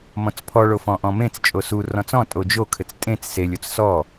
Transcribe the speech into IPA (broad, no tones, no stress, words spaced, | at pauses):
mɔ̃t͡spʰɔ ɭofɔ̃ʔɔ̃mẽt͡s t͡ʃʼosu rɔ̃t͡sɔ̃ tʼod͡ʒo kʰɘt͡stʼẽt͡s selʲ ot͡ssɔ